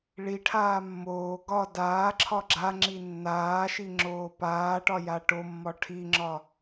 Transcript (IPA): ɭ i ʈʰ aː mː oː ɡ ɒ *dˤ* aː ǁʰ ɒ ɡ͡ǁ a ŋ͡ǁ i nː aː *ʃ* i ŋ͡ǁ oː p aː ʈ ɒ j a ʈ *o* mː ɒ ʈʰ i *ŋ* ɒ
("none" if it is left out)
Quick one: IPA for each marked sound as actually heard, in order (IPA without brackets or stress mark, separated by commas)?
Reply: d, ʃ, o, ŋ͡ǁ